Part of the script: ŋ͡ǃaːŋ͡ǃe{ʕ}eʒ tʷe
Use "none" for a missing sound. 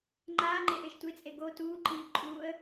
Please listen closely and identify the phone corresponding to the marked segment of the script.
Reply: ʔ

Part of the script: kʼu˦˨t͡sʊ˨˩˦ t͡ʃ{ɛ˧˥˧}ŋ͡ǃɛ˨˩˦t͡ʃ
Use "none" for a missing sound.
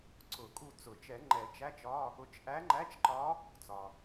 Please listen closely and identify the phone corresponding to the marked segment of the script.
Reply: ɛ˨˩˦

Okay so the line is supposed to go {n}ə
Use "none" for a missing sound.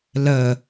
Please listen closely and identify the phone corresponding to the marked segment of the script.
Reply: l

